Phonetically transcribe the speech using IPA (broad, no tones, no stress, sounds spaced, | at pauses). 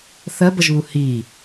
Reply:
θ ɜ b ə ʒ β u h i